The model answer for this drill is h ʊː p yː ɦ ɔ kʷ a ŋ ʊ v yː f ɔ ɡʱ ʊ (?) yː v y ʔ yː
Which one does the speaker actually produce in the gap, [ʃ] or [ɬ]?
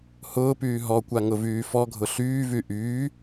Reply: ɬ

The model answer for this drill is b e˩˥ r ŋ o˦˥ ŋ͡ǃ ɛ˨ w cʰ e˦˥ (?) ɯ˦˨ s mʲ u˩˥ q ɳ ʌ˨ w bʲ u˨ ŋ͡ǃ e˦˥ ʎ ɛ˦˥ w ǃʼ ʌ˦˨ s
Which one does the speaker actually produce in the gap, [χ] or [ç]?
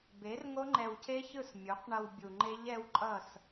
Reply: ç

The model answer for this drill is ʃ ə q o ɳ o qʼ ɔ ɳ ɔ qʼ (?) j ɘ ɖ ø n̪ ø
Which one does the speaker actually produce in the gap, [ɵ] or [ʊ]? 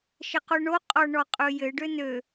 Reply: ɵ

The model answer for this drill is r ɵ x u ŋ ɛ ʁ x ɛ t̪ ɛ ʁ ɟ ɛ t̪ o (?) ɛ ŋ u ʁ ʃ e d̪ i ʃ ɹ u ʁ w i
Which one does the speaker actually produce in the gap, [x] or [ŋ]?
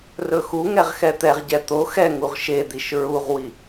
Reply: x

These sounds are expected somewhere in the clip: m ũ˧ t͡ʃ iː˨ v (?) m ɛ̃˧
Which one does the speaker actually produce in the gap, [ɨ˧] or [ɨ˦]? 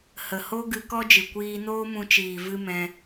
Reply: ɨ˦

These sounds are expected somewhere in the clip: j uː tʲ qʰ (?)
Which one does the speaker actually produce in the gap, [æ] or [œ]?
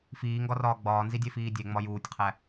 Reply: æ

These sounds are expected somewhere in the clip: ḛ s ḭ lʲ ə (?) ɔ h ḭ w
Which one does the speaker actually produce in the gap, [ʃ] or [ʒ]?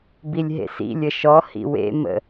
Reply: ʃ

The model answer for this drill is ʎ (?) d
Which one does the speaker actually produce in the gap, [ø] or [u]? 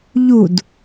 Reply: u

